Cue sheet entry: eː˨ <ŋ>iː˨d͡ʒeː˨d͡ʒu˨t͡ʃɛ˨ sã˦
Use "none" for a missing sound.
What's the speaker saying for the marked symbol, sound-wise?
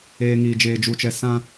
ŋ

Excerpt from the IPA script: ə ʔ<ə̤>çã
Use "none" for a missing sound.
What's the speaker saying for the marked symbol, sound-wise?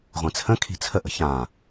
ə̤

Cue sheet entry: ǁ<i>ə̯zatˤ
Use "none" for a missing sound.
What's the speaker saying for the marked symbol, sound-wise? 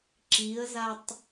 i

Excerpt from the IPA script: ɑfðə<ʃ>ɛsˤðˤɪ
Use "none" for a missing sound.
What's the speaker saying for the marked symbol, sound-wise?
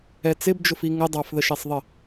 ʃ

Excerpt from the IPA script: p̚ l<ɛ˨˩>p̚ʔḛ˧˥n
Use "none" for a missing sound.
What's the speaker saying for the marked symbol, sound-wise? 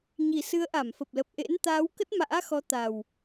ə˨˩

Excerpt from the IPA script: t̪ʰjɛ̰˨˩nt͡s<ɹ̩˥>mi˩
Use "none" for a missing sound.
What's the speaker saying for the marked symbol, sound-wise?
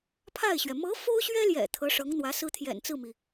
ɹ̩˥˩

